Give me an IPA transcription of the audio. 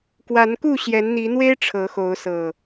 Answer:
k w a˨˦ n k u˥˨ ɕ j ɛ˨˦ n n̪ i˨˦ n̪ w e˦ ɪ̯ ʈ͡ʂʰ ɤ˨˦ x o˨˦ ʊ̯ s ɤ˨˩

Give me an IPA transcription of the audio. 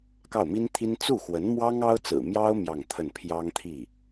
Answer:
k ɑ˥˩ ʊ̯ m i˥ n t̪ʰ i˥ n t͡s u˥˩ x w ə˧˥ n m w ɑ˥ ŋ ɑ˥ ʊ̯ t͡s ɹ̩˨˩ m j ɑ˥ ʊ̯ m j ɑ˥˧ ŋ t̪ʰ ə˥˩ n pʰ j ɑ˥ ŋ t̪ʰ i˥˩

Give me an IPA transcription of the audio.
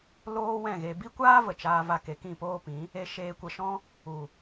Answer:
l oː˦ w ɛ̃˦˨ ɣ e˧ b i˦ kʷ aː˦ v ə˨ t͡ʃ aː˧ v a˧ k e˨ k ĩ˦˨ p oː˦ p ĩ˨˦ | e˧ ʃ eː˧ kʷ ə˧ ʃ ɔ̃˦ | u˨

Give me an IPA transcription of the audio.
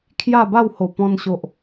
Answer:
kʰ j a˥˧ b a˥˧ w h o˨˩ p ɔ̃˧ n ɕ o˨ ʔ

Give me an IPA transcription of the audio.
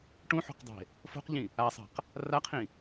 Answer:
ʈ ũ ħ o̤ q dˤ e̤ | f o̤ q ʎ ĩ | a sˤ a̤ q | r a qʰ ĩ

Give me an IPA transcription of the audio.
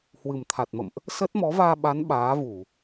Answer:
h w ɨ˨˩ m t̪ʰ a˨˩ t̚ m ə̰˧˨ m ʔ | s ə˦˥ t̚ m ɔ˨˦ v aː˧ ɓ a˨˦ n ɓ aː˨˦ v u˧˩˨

